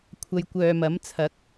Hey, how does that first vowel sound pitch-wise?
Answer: low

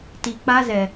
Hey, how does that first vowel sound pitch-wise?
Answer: low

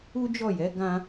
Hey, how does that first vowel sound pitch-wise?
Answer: high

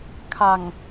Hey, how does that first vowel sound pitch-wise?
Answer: low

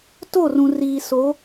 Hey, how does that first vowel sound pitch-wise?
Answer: falling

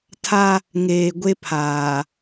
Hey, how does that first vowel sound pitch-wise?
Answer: high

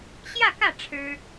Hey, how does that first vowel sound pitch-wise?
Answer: falling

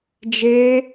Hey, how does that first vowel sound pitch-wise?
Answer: high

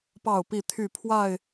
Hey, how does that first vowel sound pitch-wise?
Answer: falling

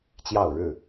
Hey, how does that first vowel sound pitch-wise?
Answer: falling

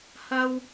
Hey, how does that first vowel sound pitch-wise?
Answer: high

